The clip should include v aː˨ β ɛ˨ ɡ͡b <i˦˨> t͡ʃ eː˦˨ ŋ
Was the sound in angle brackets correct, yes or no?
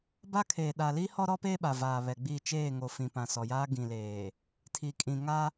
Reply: yes